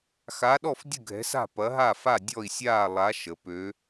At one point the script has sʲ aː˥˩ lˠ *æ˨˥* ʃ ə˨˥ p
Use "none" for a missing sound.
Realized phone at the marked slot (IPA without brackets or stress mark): a˨˥